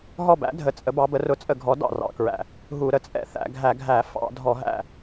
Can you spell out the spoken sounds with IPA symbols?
ɦ ɔ˧˩ b æ̰˩˧ dʱ ə˩˧ t͡sʼ ə˩˧ b ɑ˩˧ b ə˩˧ r ʊ˧˩˧ t͡sʼ ə˧˩˧ ɡʱ ɔ˩˧ d ɑ̰˧˩ r ɑ̰˧˩˧ k ɹ æ̰˧˩ | ɦ u˧˩˧ ɾ ə˩˧ t͡sʼ ɛ̰˧˩ θ æ̰˧˩˧ ɡʱ æ˧˩˧ ɡʱ æ˧˩˧ f ɑ̰˧˩˧ dʱ ɔ˧˩˧ ɦ æ̰˧˩

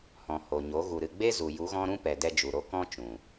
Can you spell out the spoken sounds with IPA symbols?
h ɔ̃˨ h o˨ ɲ o˨˦ ɣ u˨ ɾ ɨ˨ ɡ͡b e˦ z u˨ j u˨˦ ɣ ɔ̃˦ ɾ ũ˦ p ɛ˨ d ɛ˧ d͡ʒ u˨ ɾ o˧ k ɔ̃˦ t͡ʃ ũ˨

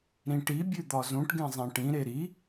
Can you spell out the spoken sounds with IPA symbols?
ɾ ĩ ʈ i bʲ ʉ d̪ ɒ z ũ ʈ ɡ ẽ zˤ ẽ ʈ ĩ ɾ e ɾ i

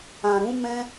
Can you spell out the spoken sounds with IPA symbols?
ã˨ ɾ ũ˨˦ m ɛ̃˦

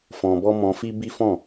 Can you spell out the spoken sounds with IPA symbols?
f ɔ̃˧ b ɔ˦ m ɔ̃˧ f i˦ b i˦ f ɔ̃˦˨

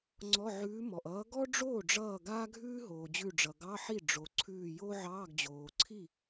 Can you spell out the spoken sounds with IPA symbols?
ŋ͡ǀ ɔ˧˥˧ ʕ ʉː˧˥ m ɔ˩ ʔ ʌː˧˥ ɡ ɔ˥ ɖ͡ʐ oː˥˩ ɖ͡ʐ ʌː˧˩ ɡ aː˥ ɡʱ ʉː˥ ɦ oː˩ d͡ʑ ʉ˧˩ ɖ͡ʐ ʌ˩ ɡ ɑ˧˥˧ ħ i˥˩ ɖ͡ʐ o˩ ǀʰ ʉː˧˩ j o˥ ʕ ɑː˧˥˧ ɡ d͡ʑ oː˩ ǀʰ i˥˩

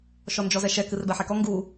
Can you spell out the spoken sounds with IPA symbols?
ʃ ɔ n d͡ʒ ɔ z ɛ ʃ ɛ k ɨ r b ɛ ħ ɛ k ɔ ŋ ɡ u

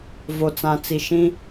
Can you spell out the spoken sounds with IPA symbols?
v o˨ t͡s ã˨ t͡s i˨ ʃ ĩ˦

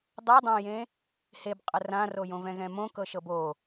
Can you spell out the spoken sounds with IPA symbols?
dˤ ɤ dˤ ã j ẽ | h e b qʼ ə r ã r o j õ v ɛ̃ ɣ ɛ̃ m õ k ɤ ʃ ɤ b o

